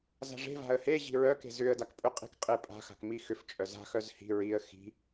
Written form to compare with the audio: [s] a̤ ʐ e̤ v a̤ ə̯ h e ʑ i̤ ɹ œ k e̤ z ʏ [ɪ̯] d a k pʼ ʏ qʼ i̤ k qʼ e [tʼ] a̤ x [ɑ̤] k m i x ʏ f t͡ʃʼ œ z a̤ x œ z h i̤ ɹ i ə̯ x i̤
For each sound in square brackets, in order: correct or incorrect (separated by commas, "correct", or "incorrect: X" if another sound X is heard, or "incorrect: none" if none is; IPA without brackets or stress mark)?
incorrect: z, incorrect: ə̯, incorrect: pʼ, incorrect: a̤